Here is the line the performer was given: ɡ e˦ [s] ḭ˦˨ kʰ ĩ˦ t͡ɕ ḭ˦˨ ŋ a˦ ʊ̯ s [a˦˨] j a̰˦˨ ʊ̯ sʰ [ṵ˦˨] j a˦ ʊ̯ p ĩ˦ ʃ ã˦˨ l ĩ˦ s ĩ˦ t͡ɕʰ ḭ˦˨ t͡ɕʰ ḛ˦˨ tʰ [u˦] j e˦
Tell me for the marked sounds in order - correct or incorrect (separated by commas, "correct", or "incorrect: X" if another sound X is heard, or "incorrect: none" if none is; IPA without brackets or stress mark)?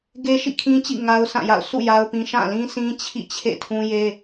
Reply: incorrect: ʃ, incorrect: ã˦˨, correct, incorrect: ũ˦